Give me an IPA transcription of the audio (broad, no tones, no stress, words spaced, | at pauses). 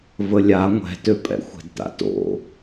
vəlʲa ŋʷɛ̤tøpʼɛ̰ xʷɛ̤dta̰to̰